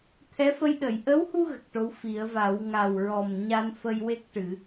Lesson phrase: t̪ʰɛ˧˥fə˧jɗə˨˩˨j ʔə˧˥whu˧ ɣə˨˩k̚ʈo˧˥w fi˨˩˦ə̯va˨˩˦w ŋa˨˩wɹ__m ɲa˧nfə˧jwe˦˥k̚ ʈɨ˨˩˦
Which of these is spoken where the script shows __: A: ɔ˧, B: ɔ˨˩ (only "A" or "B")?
B